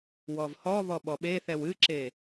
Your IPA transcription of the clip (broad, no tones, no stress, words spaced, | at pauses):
wɔvhɔ βɔɓɔɓeθɛw ɨǁe